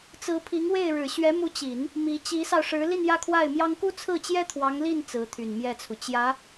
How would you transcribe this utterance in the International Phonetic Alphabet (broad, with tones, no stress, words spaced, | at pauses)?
t͡sɹ̩˧˥pʰi˧˥ŋwe˥˩ɪ̯ ɻɻ̩˨˩ɕɥɛ˧˥mu˧˥ t͡ɕi˨˩˦n | mi˧˥ t͡ɕi˧˥sɑ˧ʊ̯ʂɻ̩˧˥ li˥˧njä˥˧kʰwa˥˩ɪ̯mjɑ˥ŋ ku˥t͡sʰɹ̩˥˩t͡ɕjɛ˥ t̪ʰwɑ˧˥ŋli˥˩n t͡sɹ̩˧˥t̪ʰy˨˩nmjɛ˥˩t͡sʰu˩ t͡ɕjä˧˥